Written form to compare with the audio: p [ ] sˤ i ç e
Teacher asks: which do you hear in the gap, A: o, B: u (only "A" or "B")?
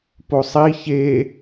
A